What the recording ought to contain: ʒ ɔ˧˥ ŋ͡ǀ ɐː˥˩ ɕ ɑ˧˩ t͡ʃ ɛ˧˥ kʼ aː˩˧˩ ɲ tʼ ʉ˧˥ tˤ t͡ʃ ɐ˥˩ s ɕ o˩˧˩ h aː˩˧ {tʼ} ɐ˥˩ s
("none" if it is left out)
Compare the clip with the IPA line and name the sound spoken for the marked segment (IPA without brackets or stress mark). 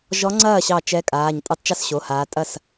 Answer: tʼ